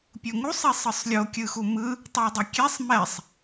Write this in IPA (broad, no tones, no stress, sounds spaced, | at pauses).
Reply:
pʲ u ŋ u sˤ i sˤ ɯ sˤ lʲ o kʲ ɯ x u m ɯ | tˤ ɛ dˤ ʌ kʲ ɛ sˤ m ɛ sˤ